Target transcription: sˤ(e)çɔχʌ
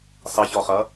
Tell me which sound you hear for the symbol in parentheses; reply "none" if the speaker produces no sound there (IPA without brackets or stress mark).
e